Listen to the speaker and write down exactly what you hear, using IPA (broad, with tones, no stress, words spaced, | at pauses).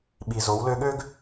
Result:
ɓi˩zo˩˧wlø˧ɠø˥ɡ